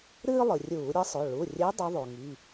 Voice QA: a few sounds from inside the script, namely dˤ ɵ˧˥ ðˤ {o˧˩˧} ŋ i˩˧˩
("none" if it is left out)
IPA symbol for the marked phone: o˩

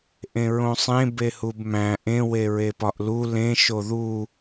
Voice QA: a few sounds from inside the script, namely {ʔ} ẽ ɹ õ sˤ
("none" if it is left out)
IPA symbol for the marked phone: ʔ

